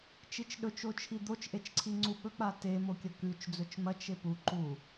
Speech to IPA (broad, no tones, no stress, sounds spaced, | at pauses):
t͡ʃ i t͡ʃ ɗ ɵ t͡ʃ o t͡ʃʰ i d̪ o t͡ʃ ʔ e t͡ʃ ǀʰ i ŋ͡ǀ u ɓ ɵ k͡p a t e m o kʲ ɐ k ʉ t͡ʃ d͡z ɵ t͡ʃ m ɐ t͡ʃ e p u ǃ u